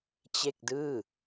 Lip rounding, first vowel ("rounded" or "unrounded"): unrounded